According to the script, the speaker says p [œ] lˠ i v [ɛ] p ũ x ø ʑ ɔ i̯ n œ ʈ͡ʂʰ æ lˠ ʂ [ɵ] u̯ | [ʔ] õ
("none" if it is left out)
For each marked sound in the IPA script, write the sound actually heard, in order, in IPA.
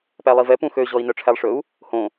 æ, ɛ, ɵ, h

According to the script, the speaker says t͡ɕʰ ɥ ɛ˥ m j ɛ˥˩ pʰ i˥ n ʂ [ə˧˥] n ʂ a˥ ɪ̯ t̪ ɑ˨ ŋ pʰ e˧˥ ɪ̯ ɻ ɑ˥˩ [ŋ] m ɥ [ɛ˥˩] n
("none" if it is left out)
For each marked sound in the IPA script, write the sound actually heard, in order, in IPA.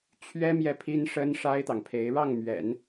ə˥, ŋ, ɛ̰˨˩˦

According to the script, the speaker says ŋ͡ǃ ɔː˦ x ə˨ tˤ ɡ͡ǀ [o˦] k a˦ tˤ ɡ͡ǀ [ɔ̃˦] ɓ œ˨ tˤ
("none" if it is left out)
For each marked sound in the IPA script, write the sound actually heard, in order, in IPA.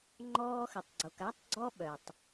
o˨, ɔ˦

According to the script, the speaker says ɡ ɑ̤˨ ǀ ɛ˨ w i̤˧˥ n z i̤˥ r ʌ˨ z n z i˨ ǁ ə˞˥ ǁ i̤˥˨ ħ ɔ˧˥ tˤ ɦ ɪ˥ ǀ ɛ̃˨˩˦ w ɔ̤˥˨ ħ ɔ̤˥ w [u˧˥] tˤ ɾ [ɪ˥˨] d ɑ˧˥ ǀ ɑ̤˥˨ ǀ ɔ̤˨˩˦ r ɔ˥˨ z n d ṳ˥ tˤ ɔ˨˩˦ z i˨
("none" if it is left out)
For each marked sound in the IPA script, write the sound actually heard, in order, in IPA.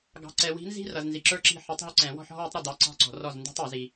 u˧˥, ɪ˥˨

